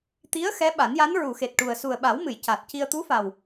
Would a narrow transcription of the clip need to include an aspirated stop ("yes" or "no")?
no